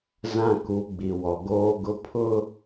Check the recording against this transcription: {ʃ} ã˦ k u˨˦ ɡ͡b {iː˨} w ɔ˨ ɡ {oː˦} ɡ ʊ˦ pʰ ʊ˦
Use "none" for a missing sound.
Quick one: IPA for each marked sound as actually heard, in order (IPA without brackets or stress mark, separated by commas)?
z, i˨, oː˦